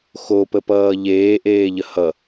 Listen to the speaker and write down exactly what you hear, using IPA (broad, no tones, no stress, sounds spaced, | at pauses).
x o p ə p ʌː ʎ eː ʔ eː ʎ ə h ʌ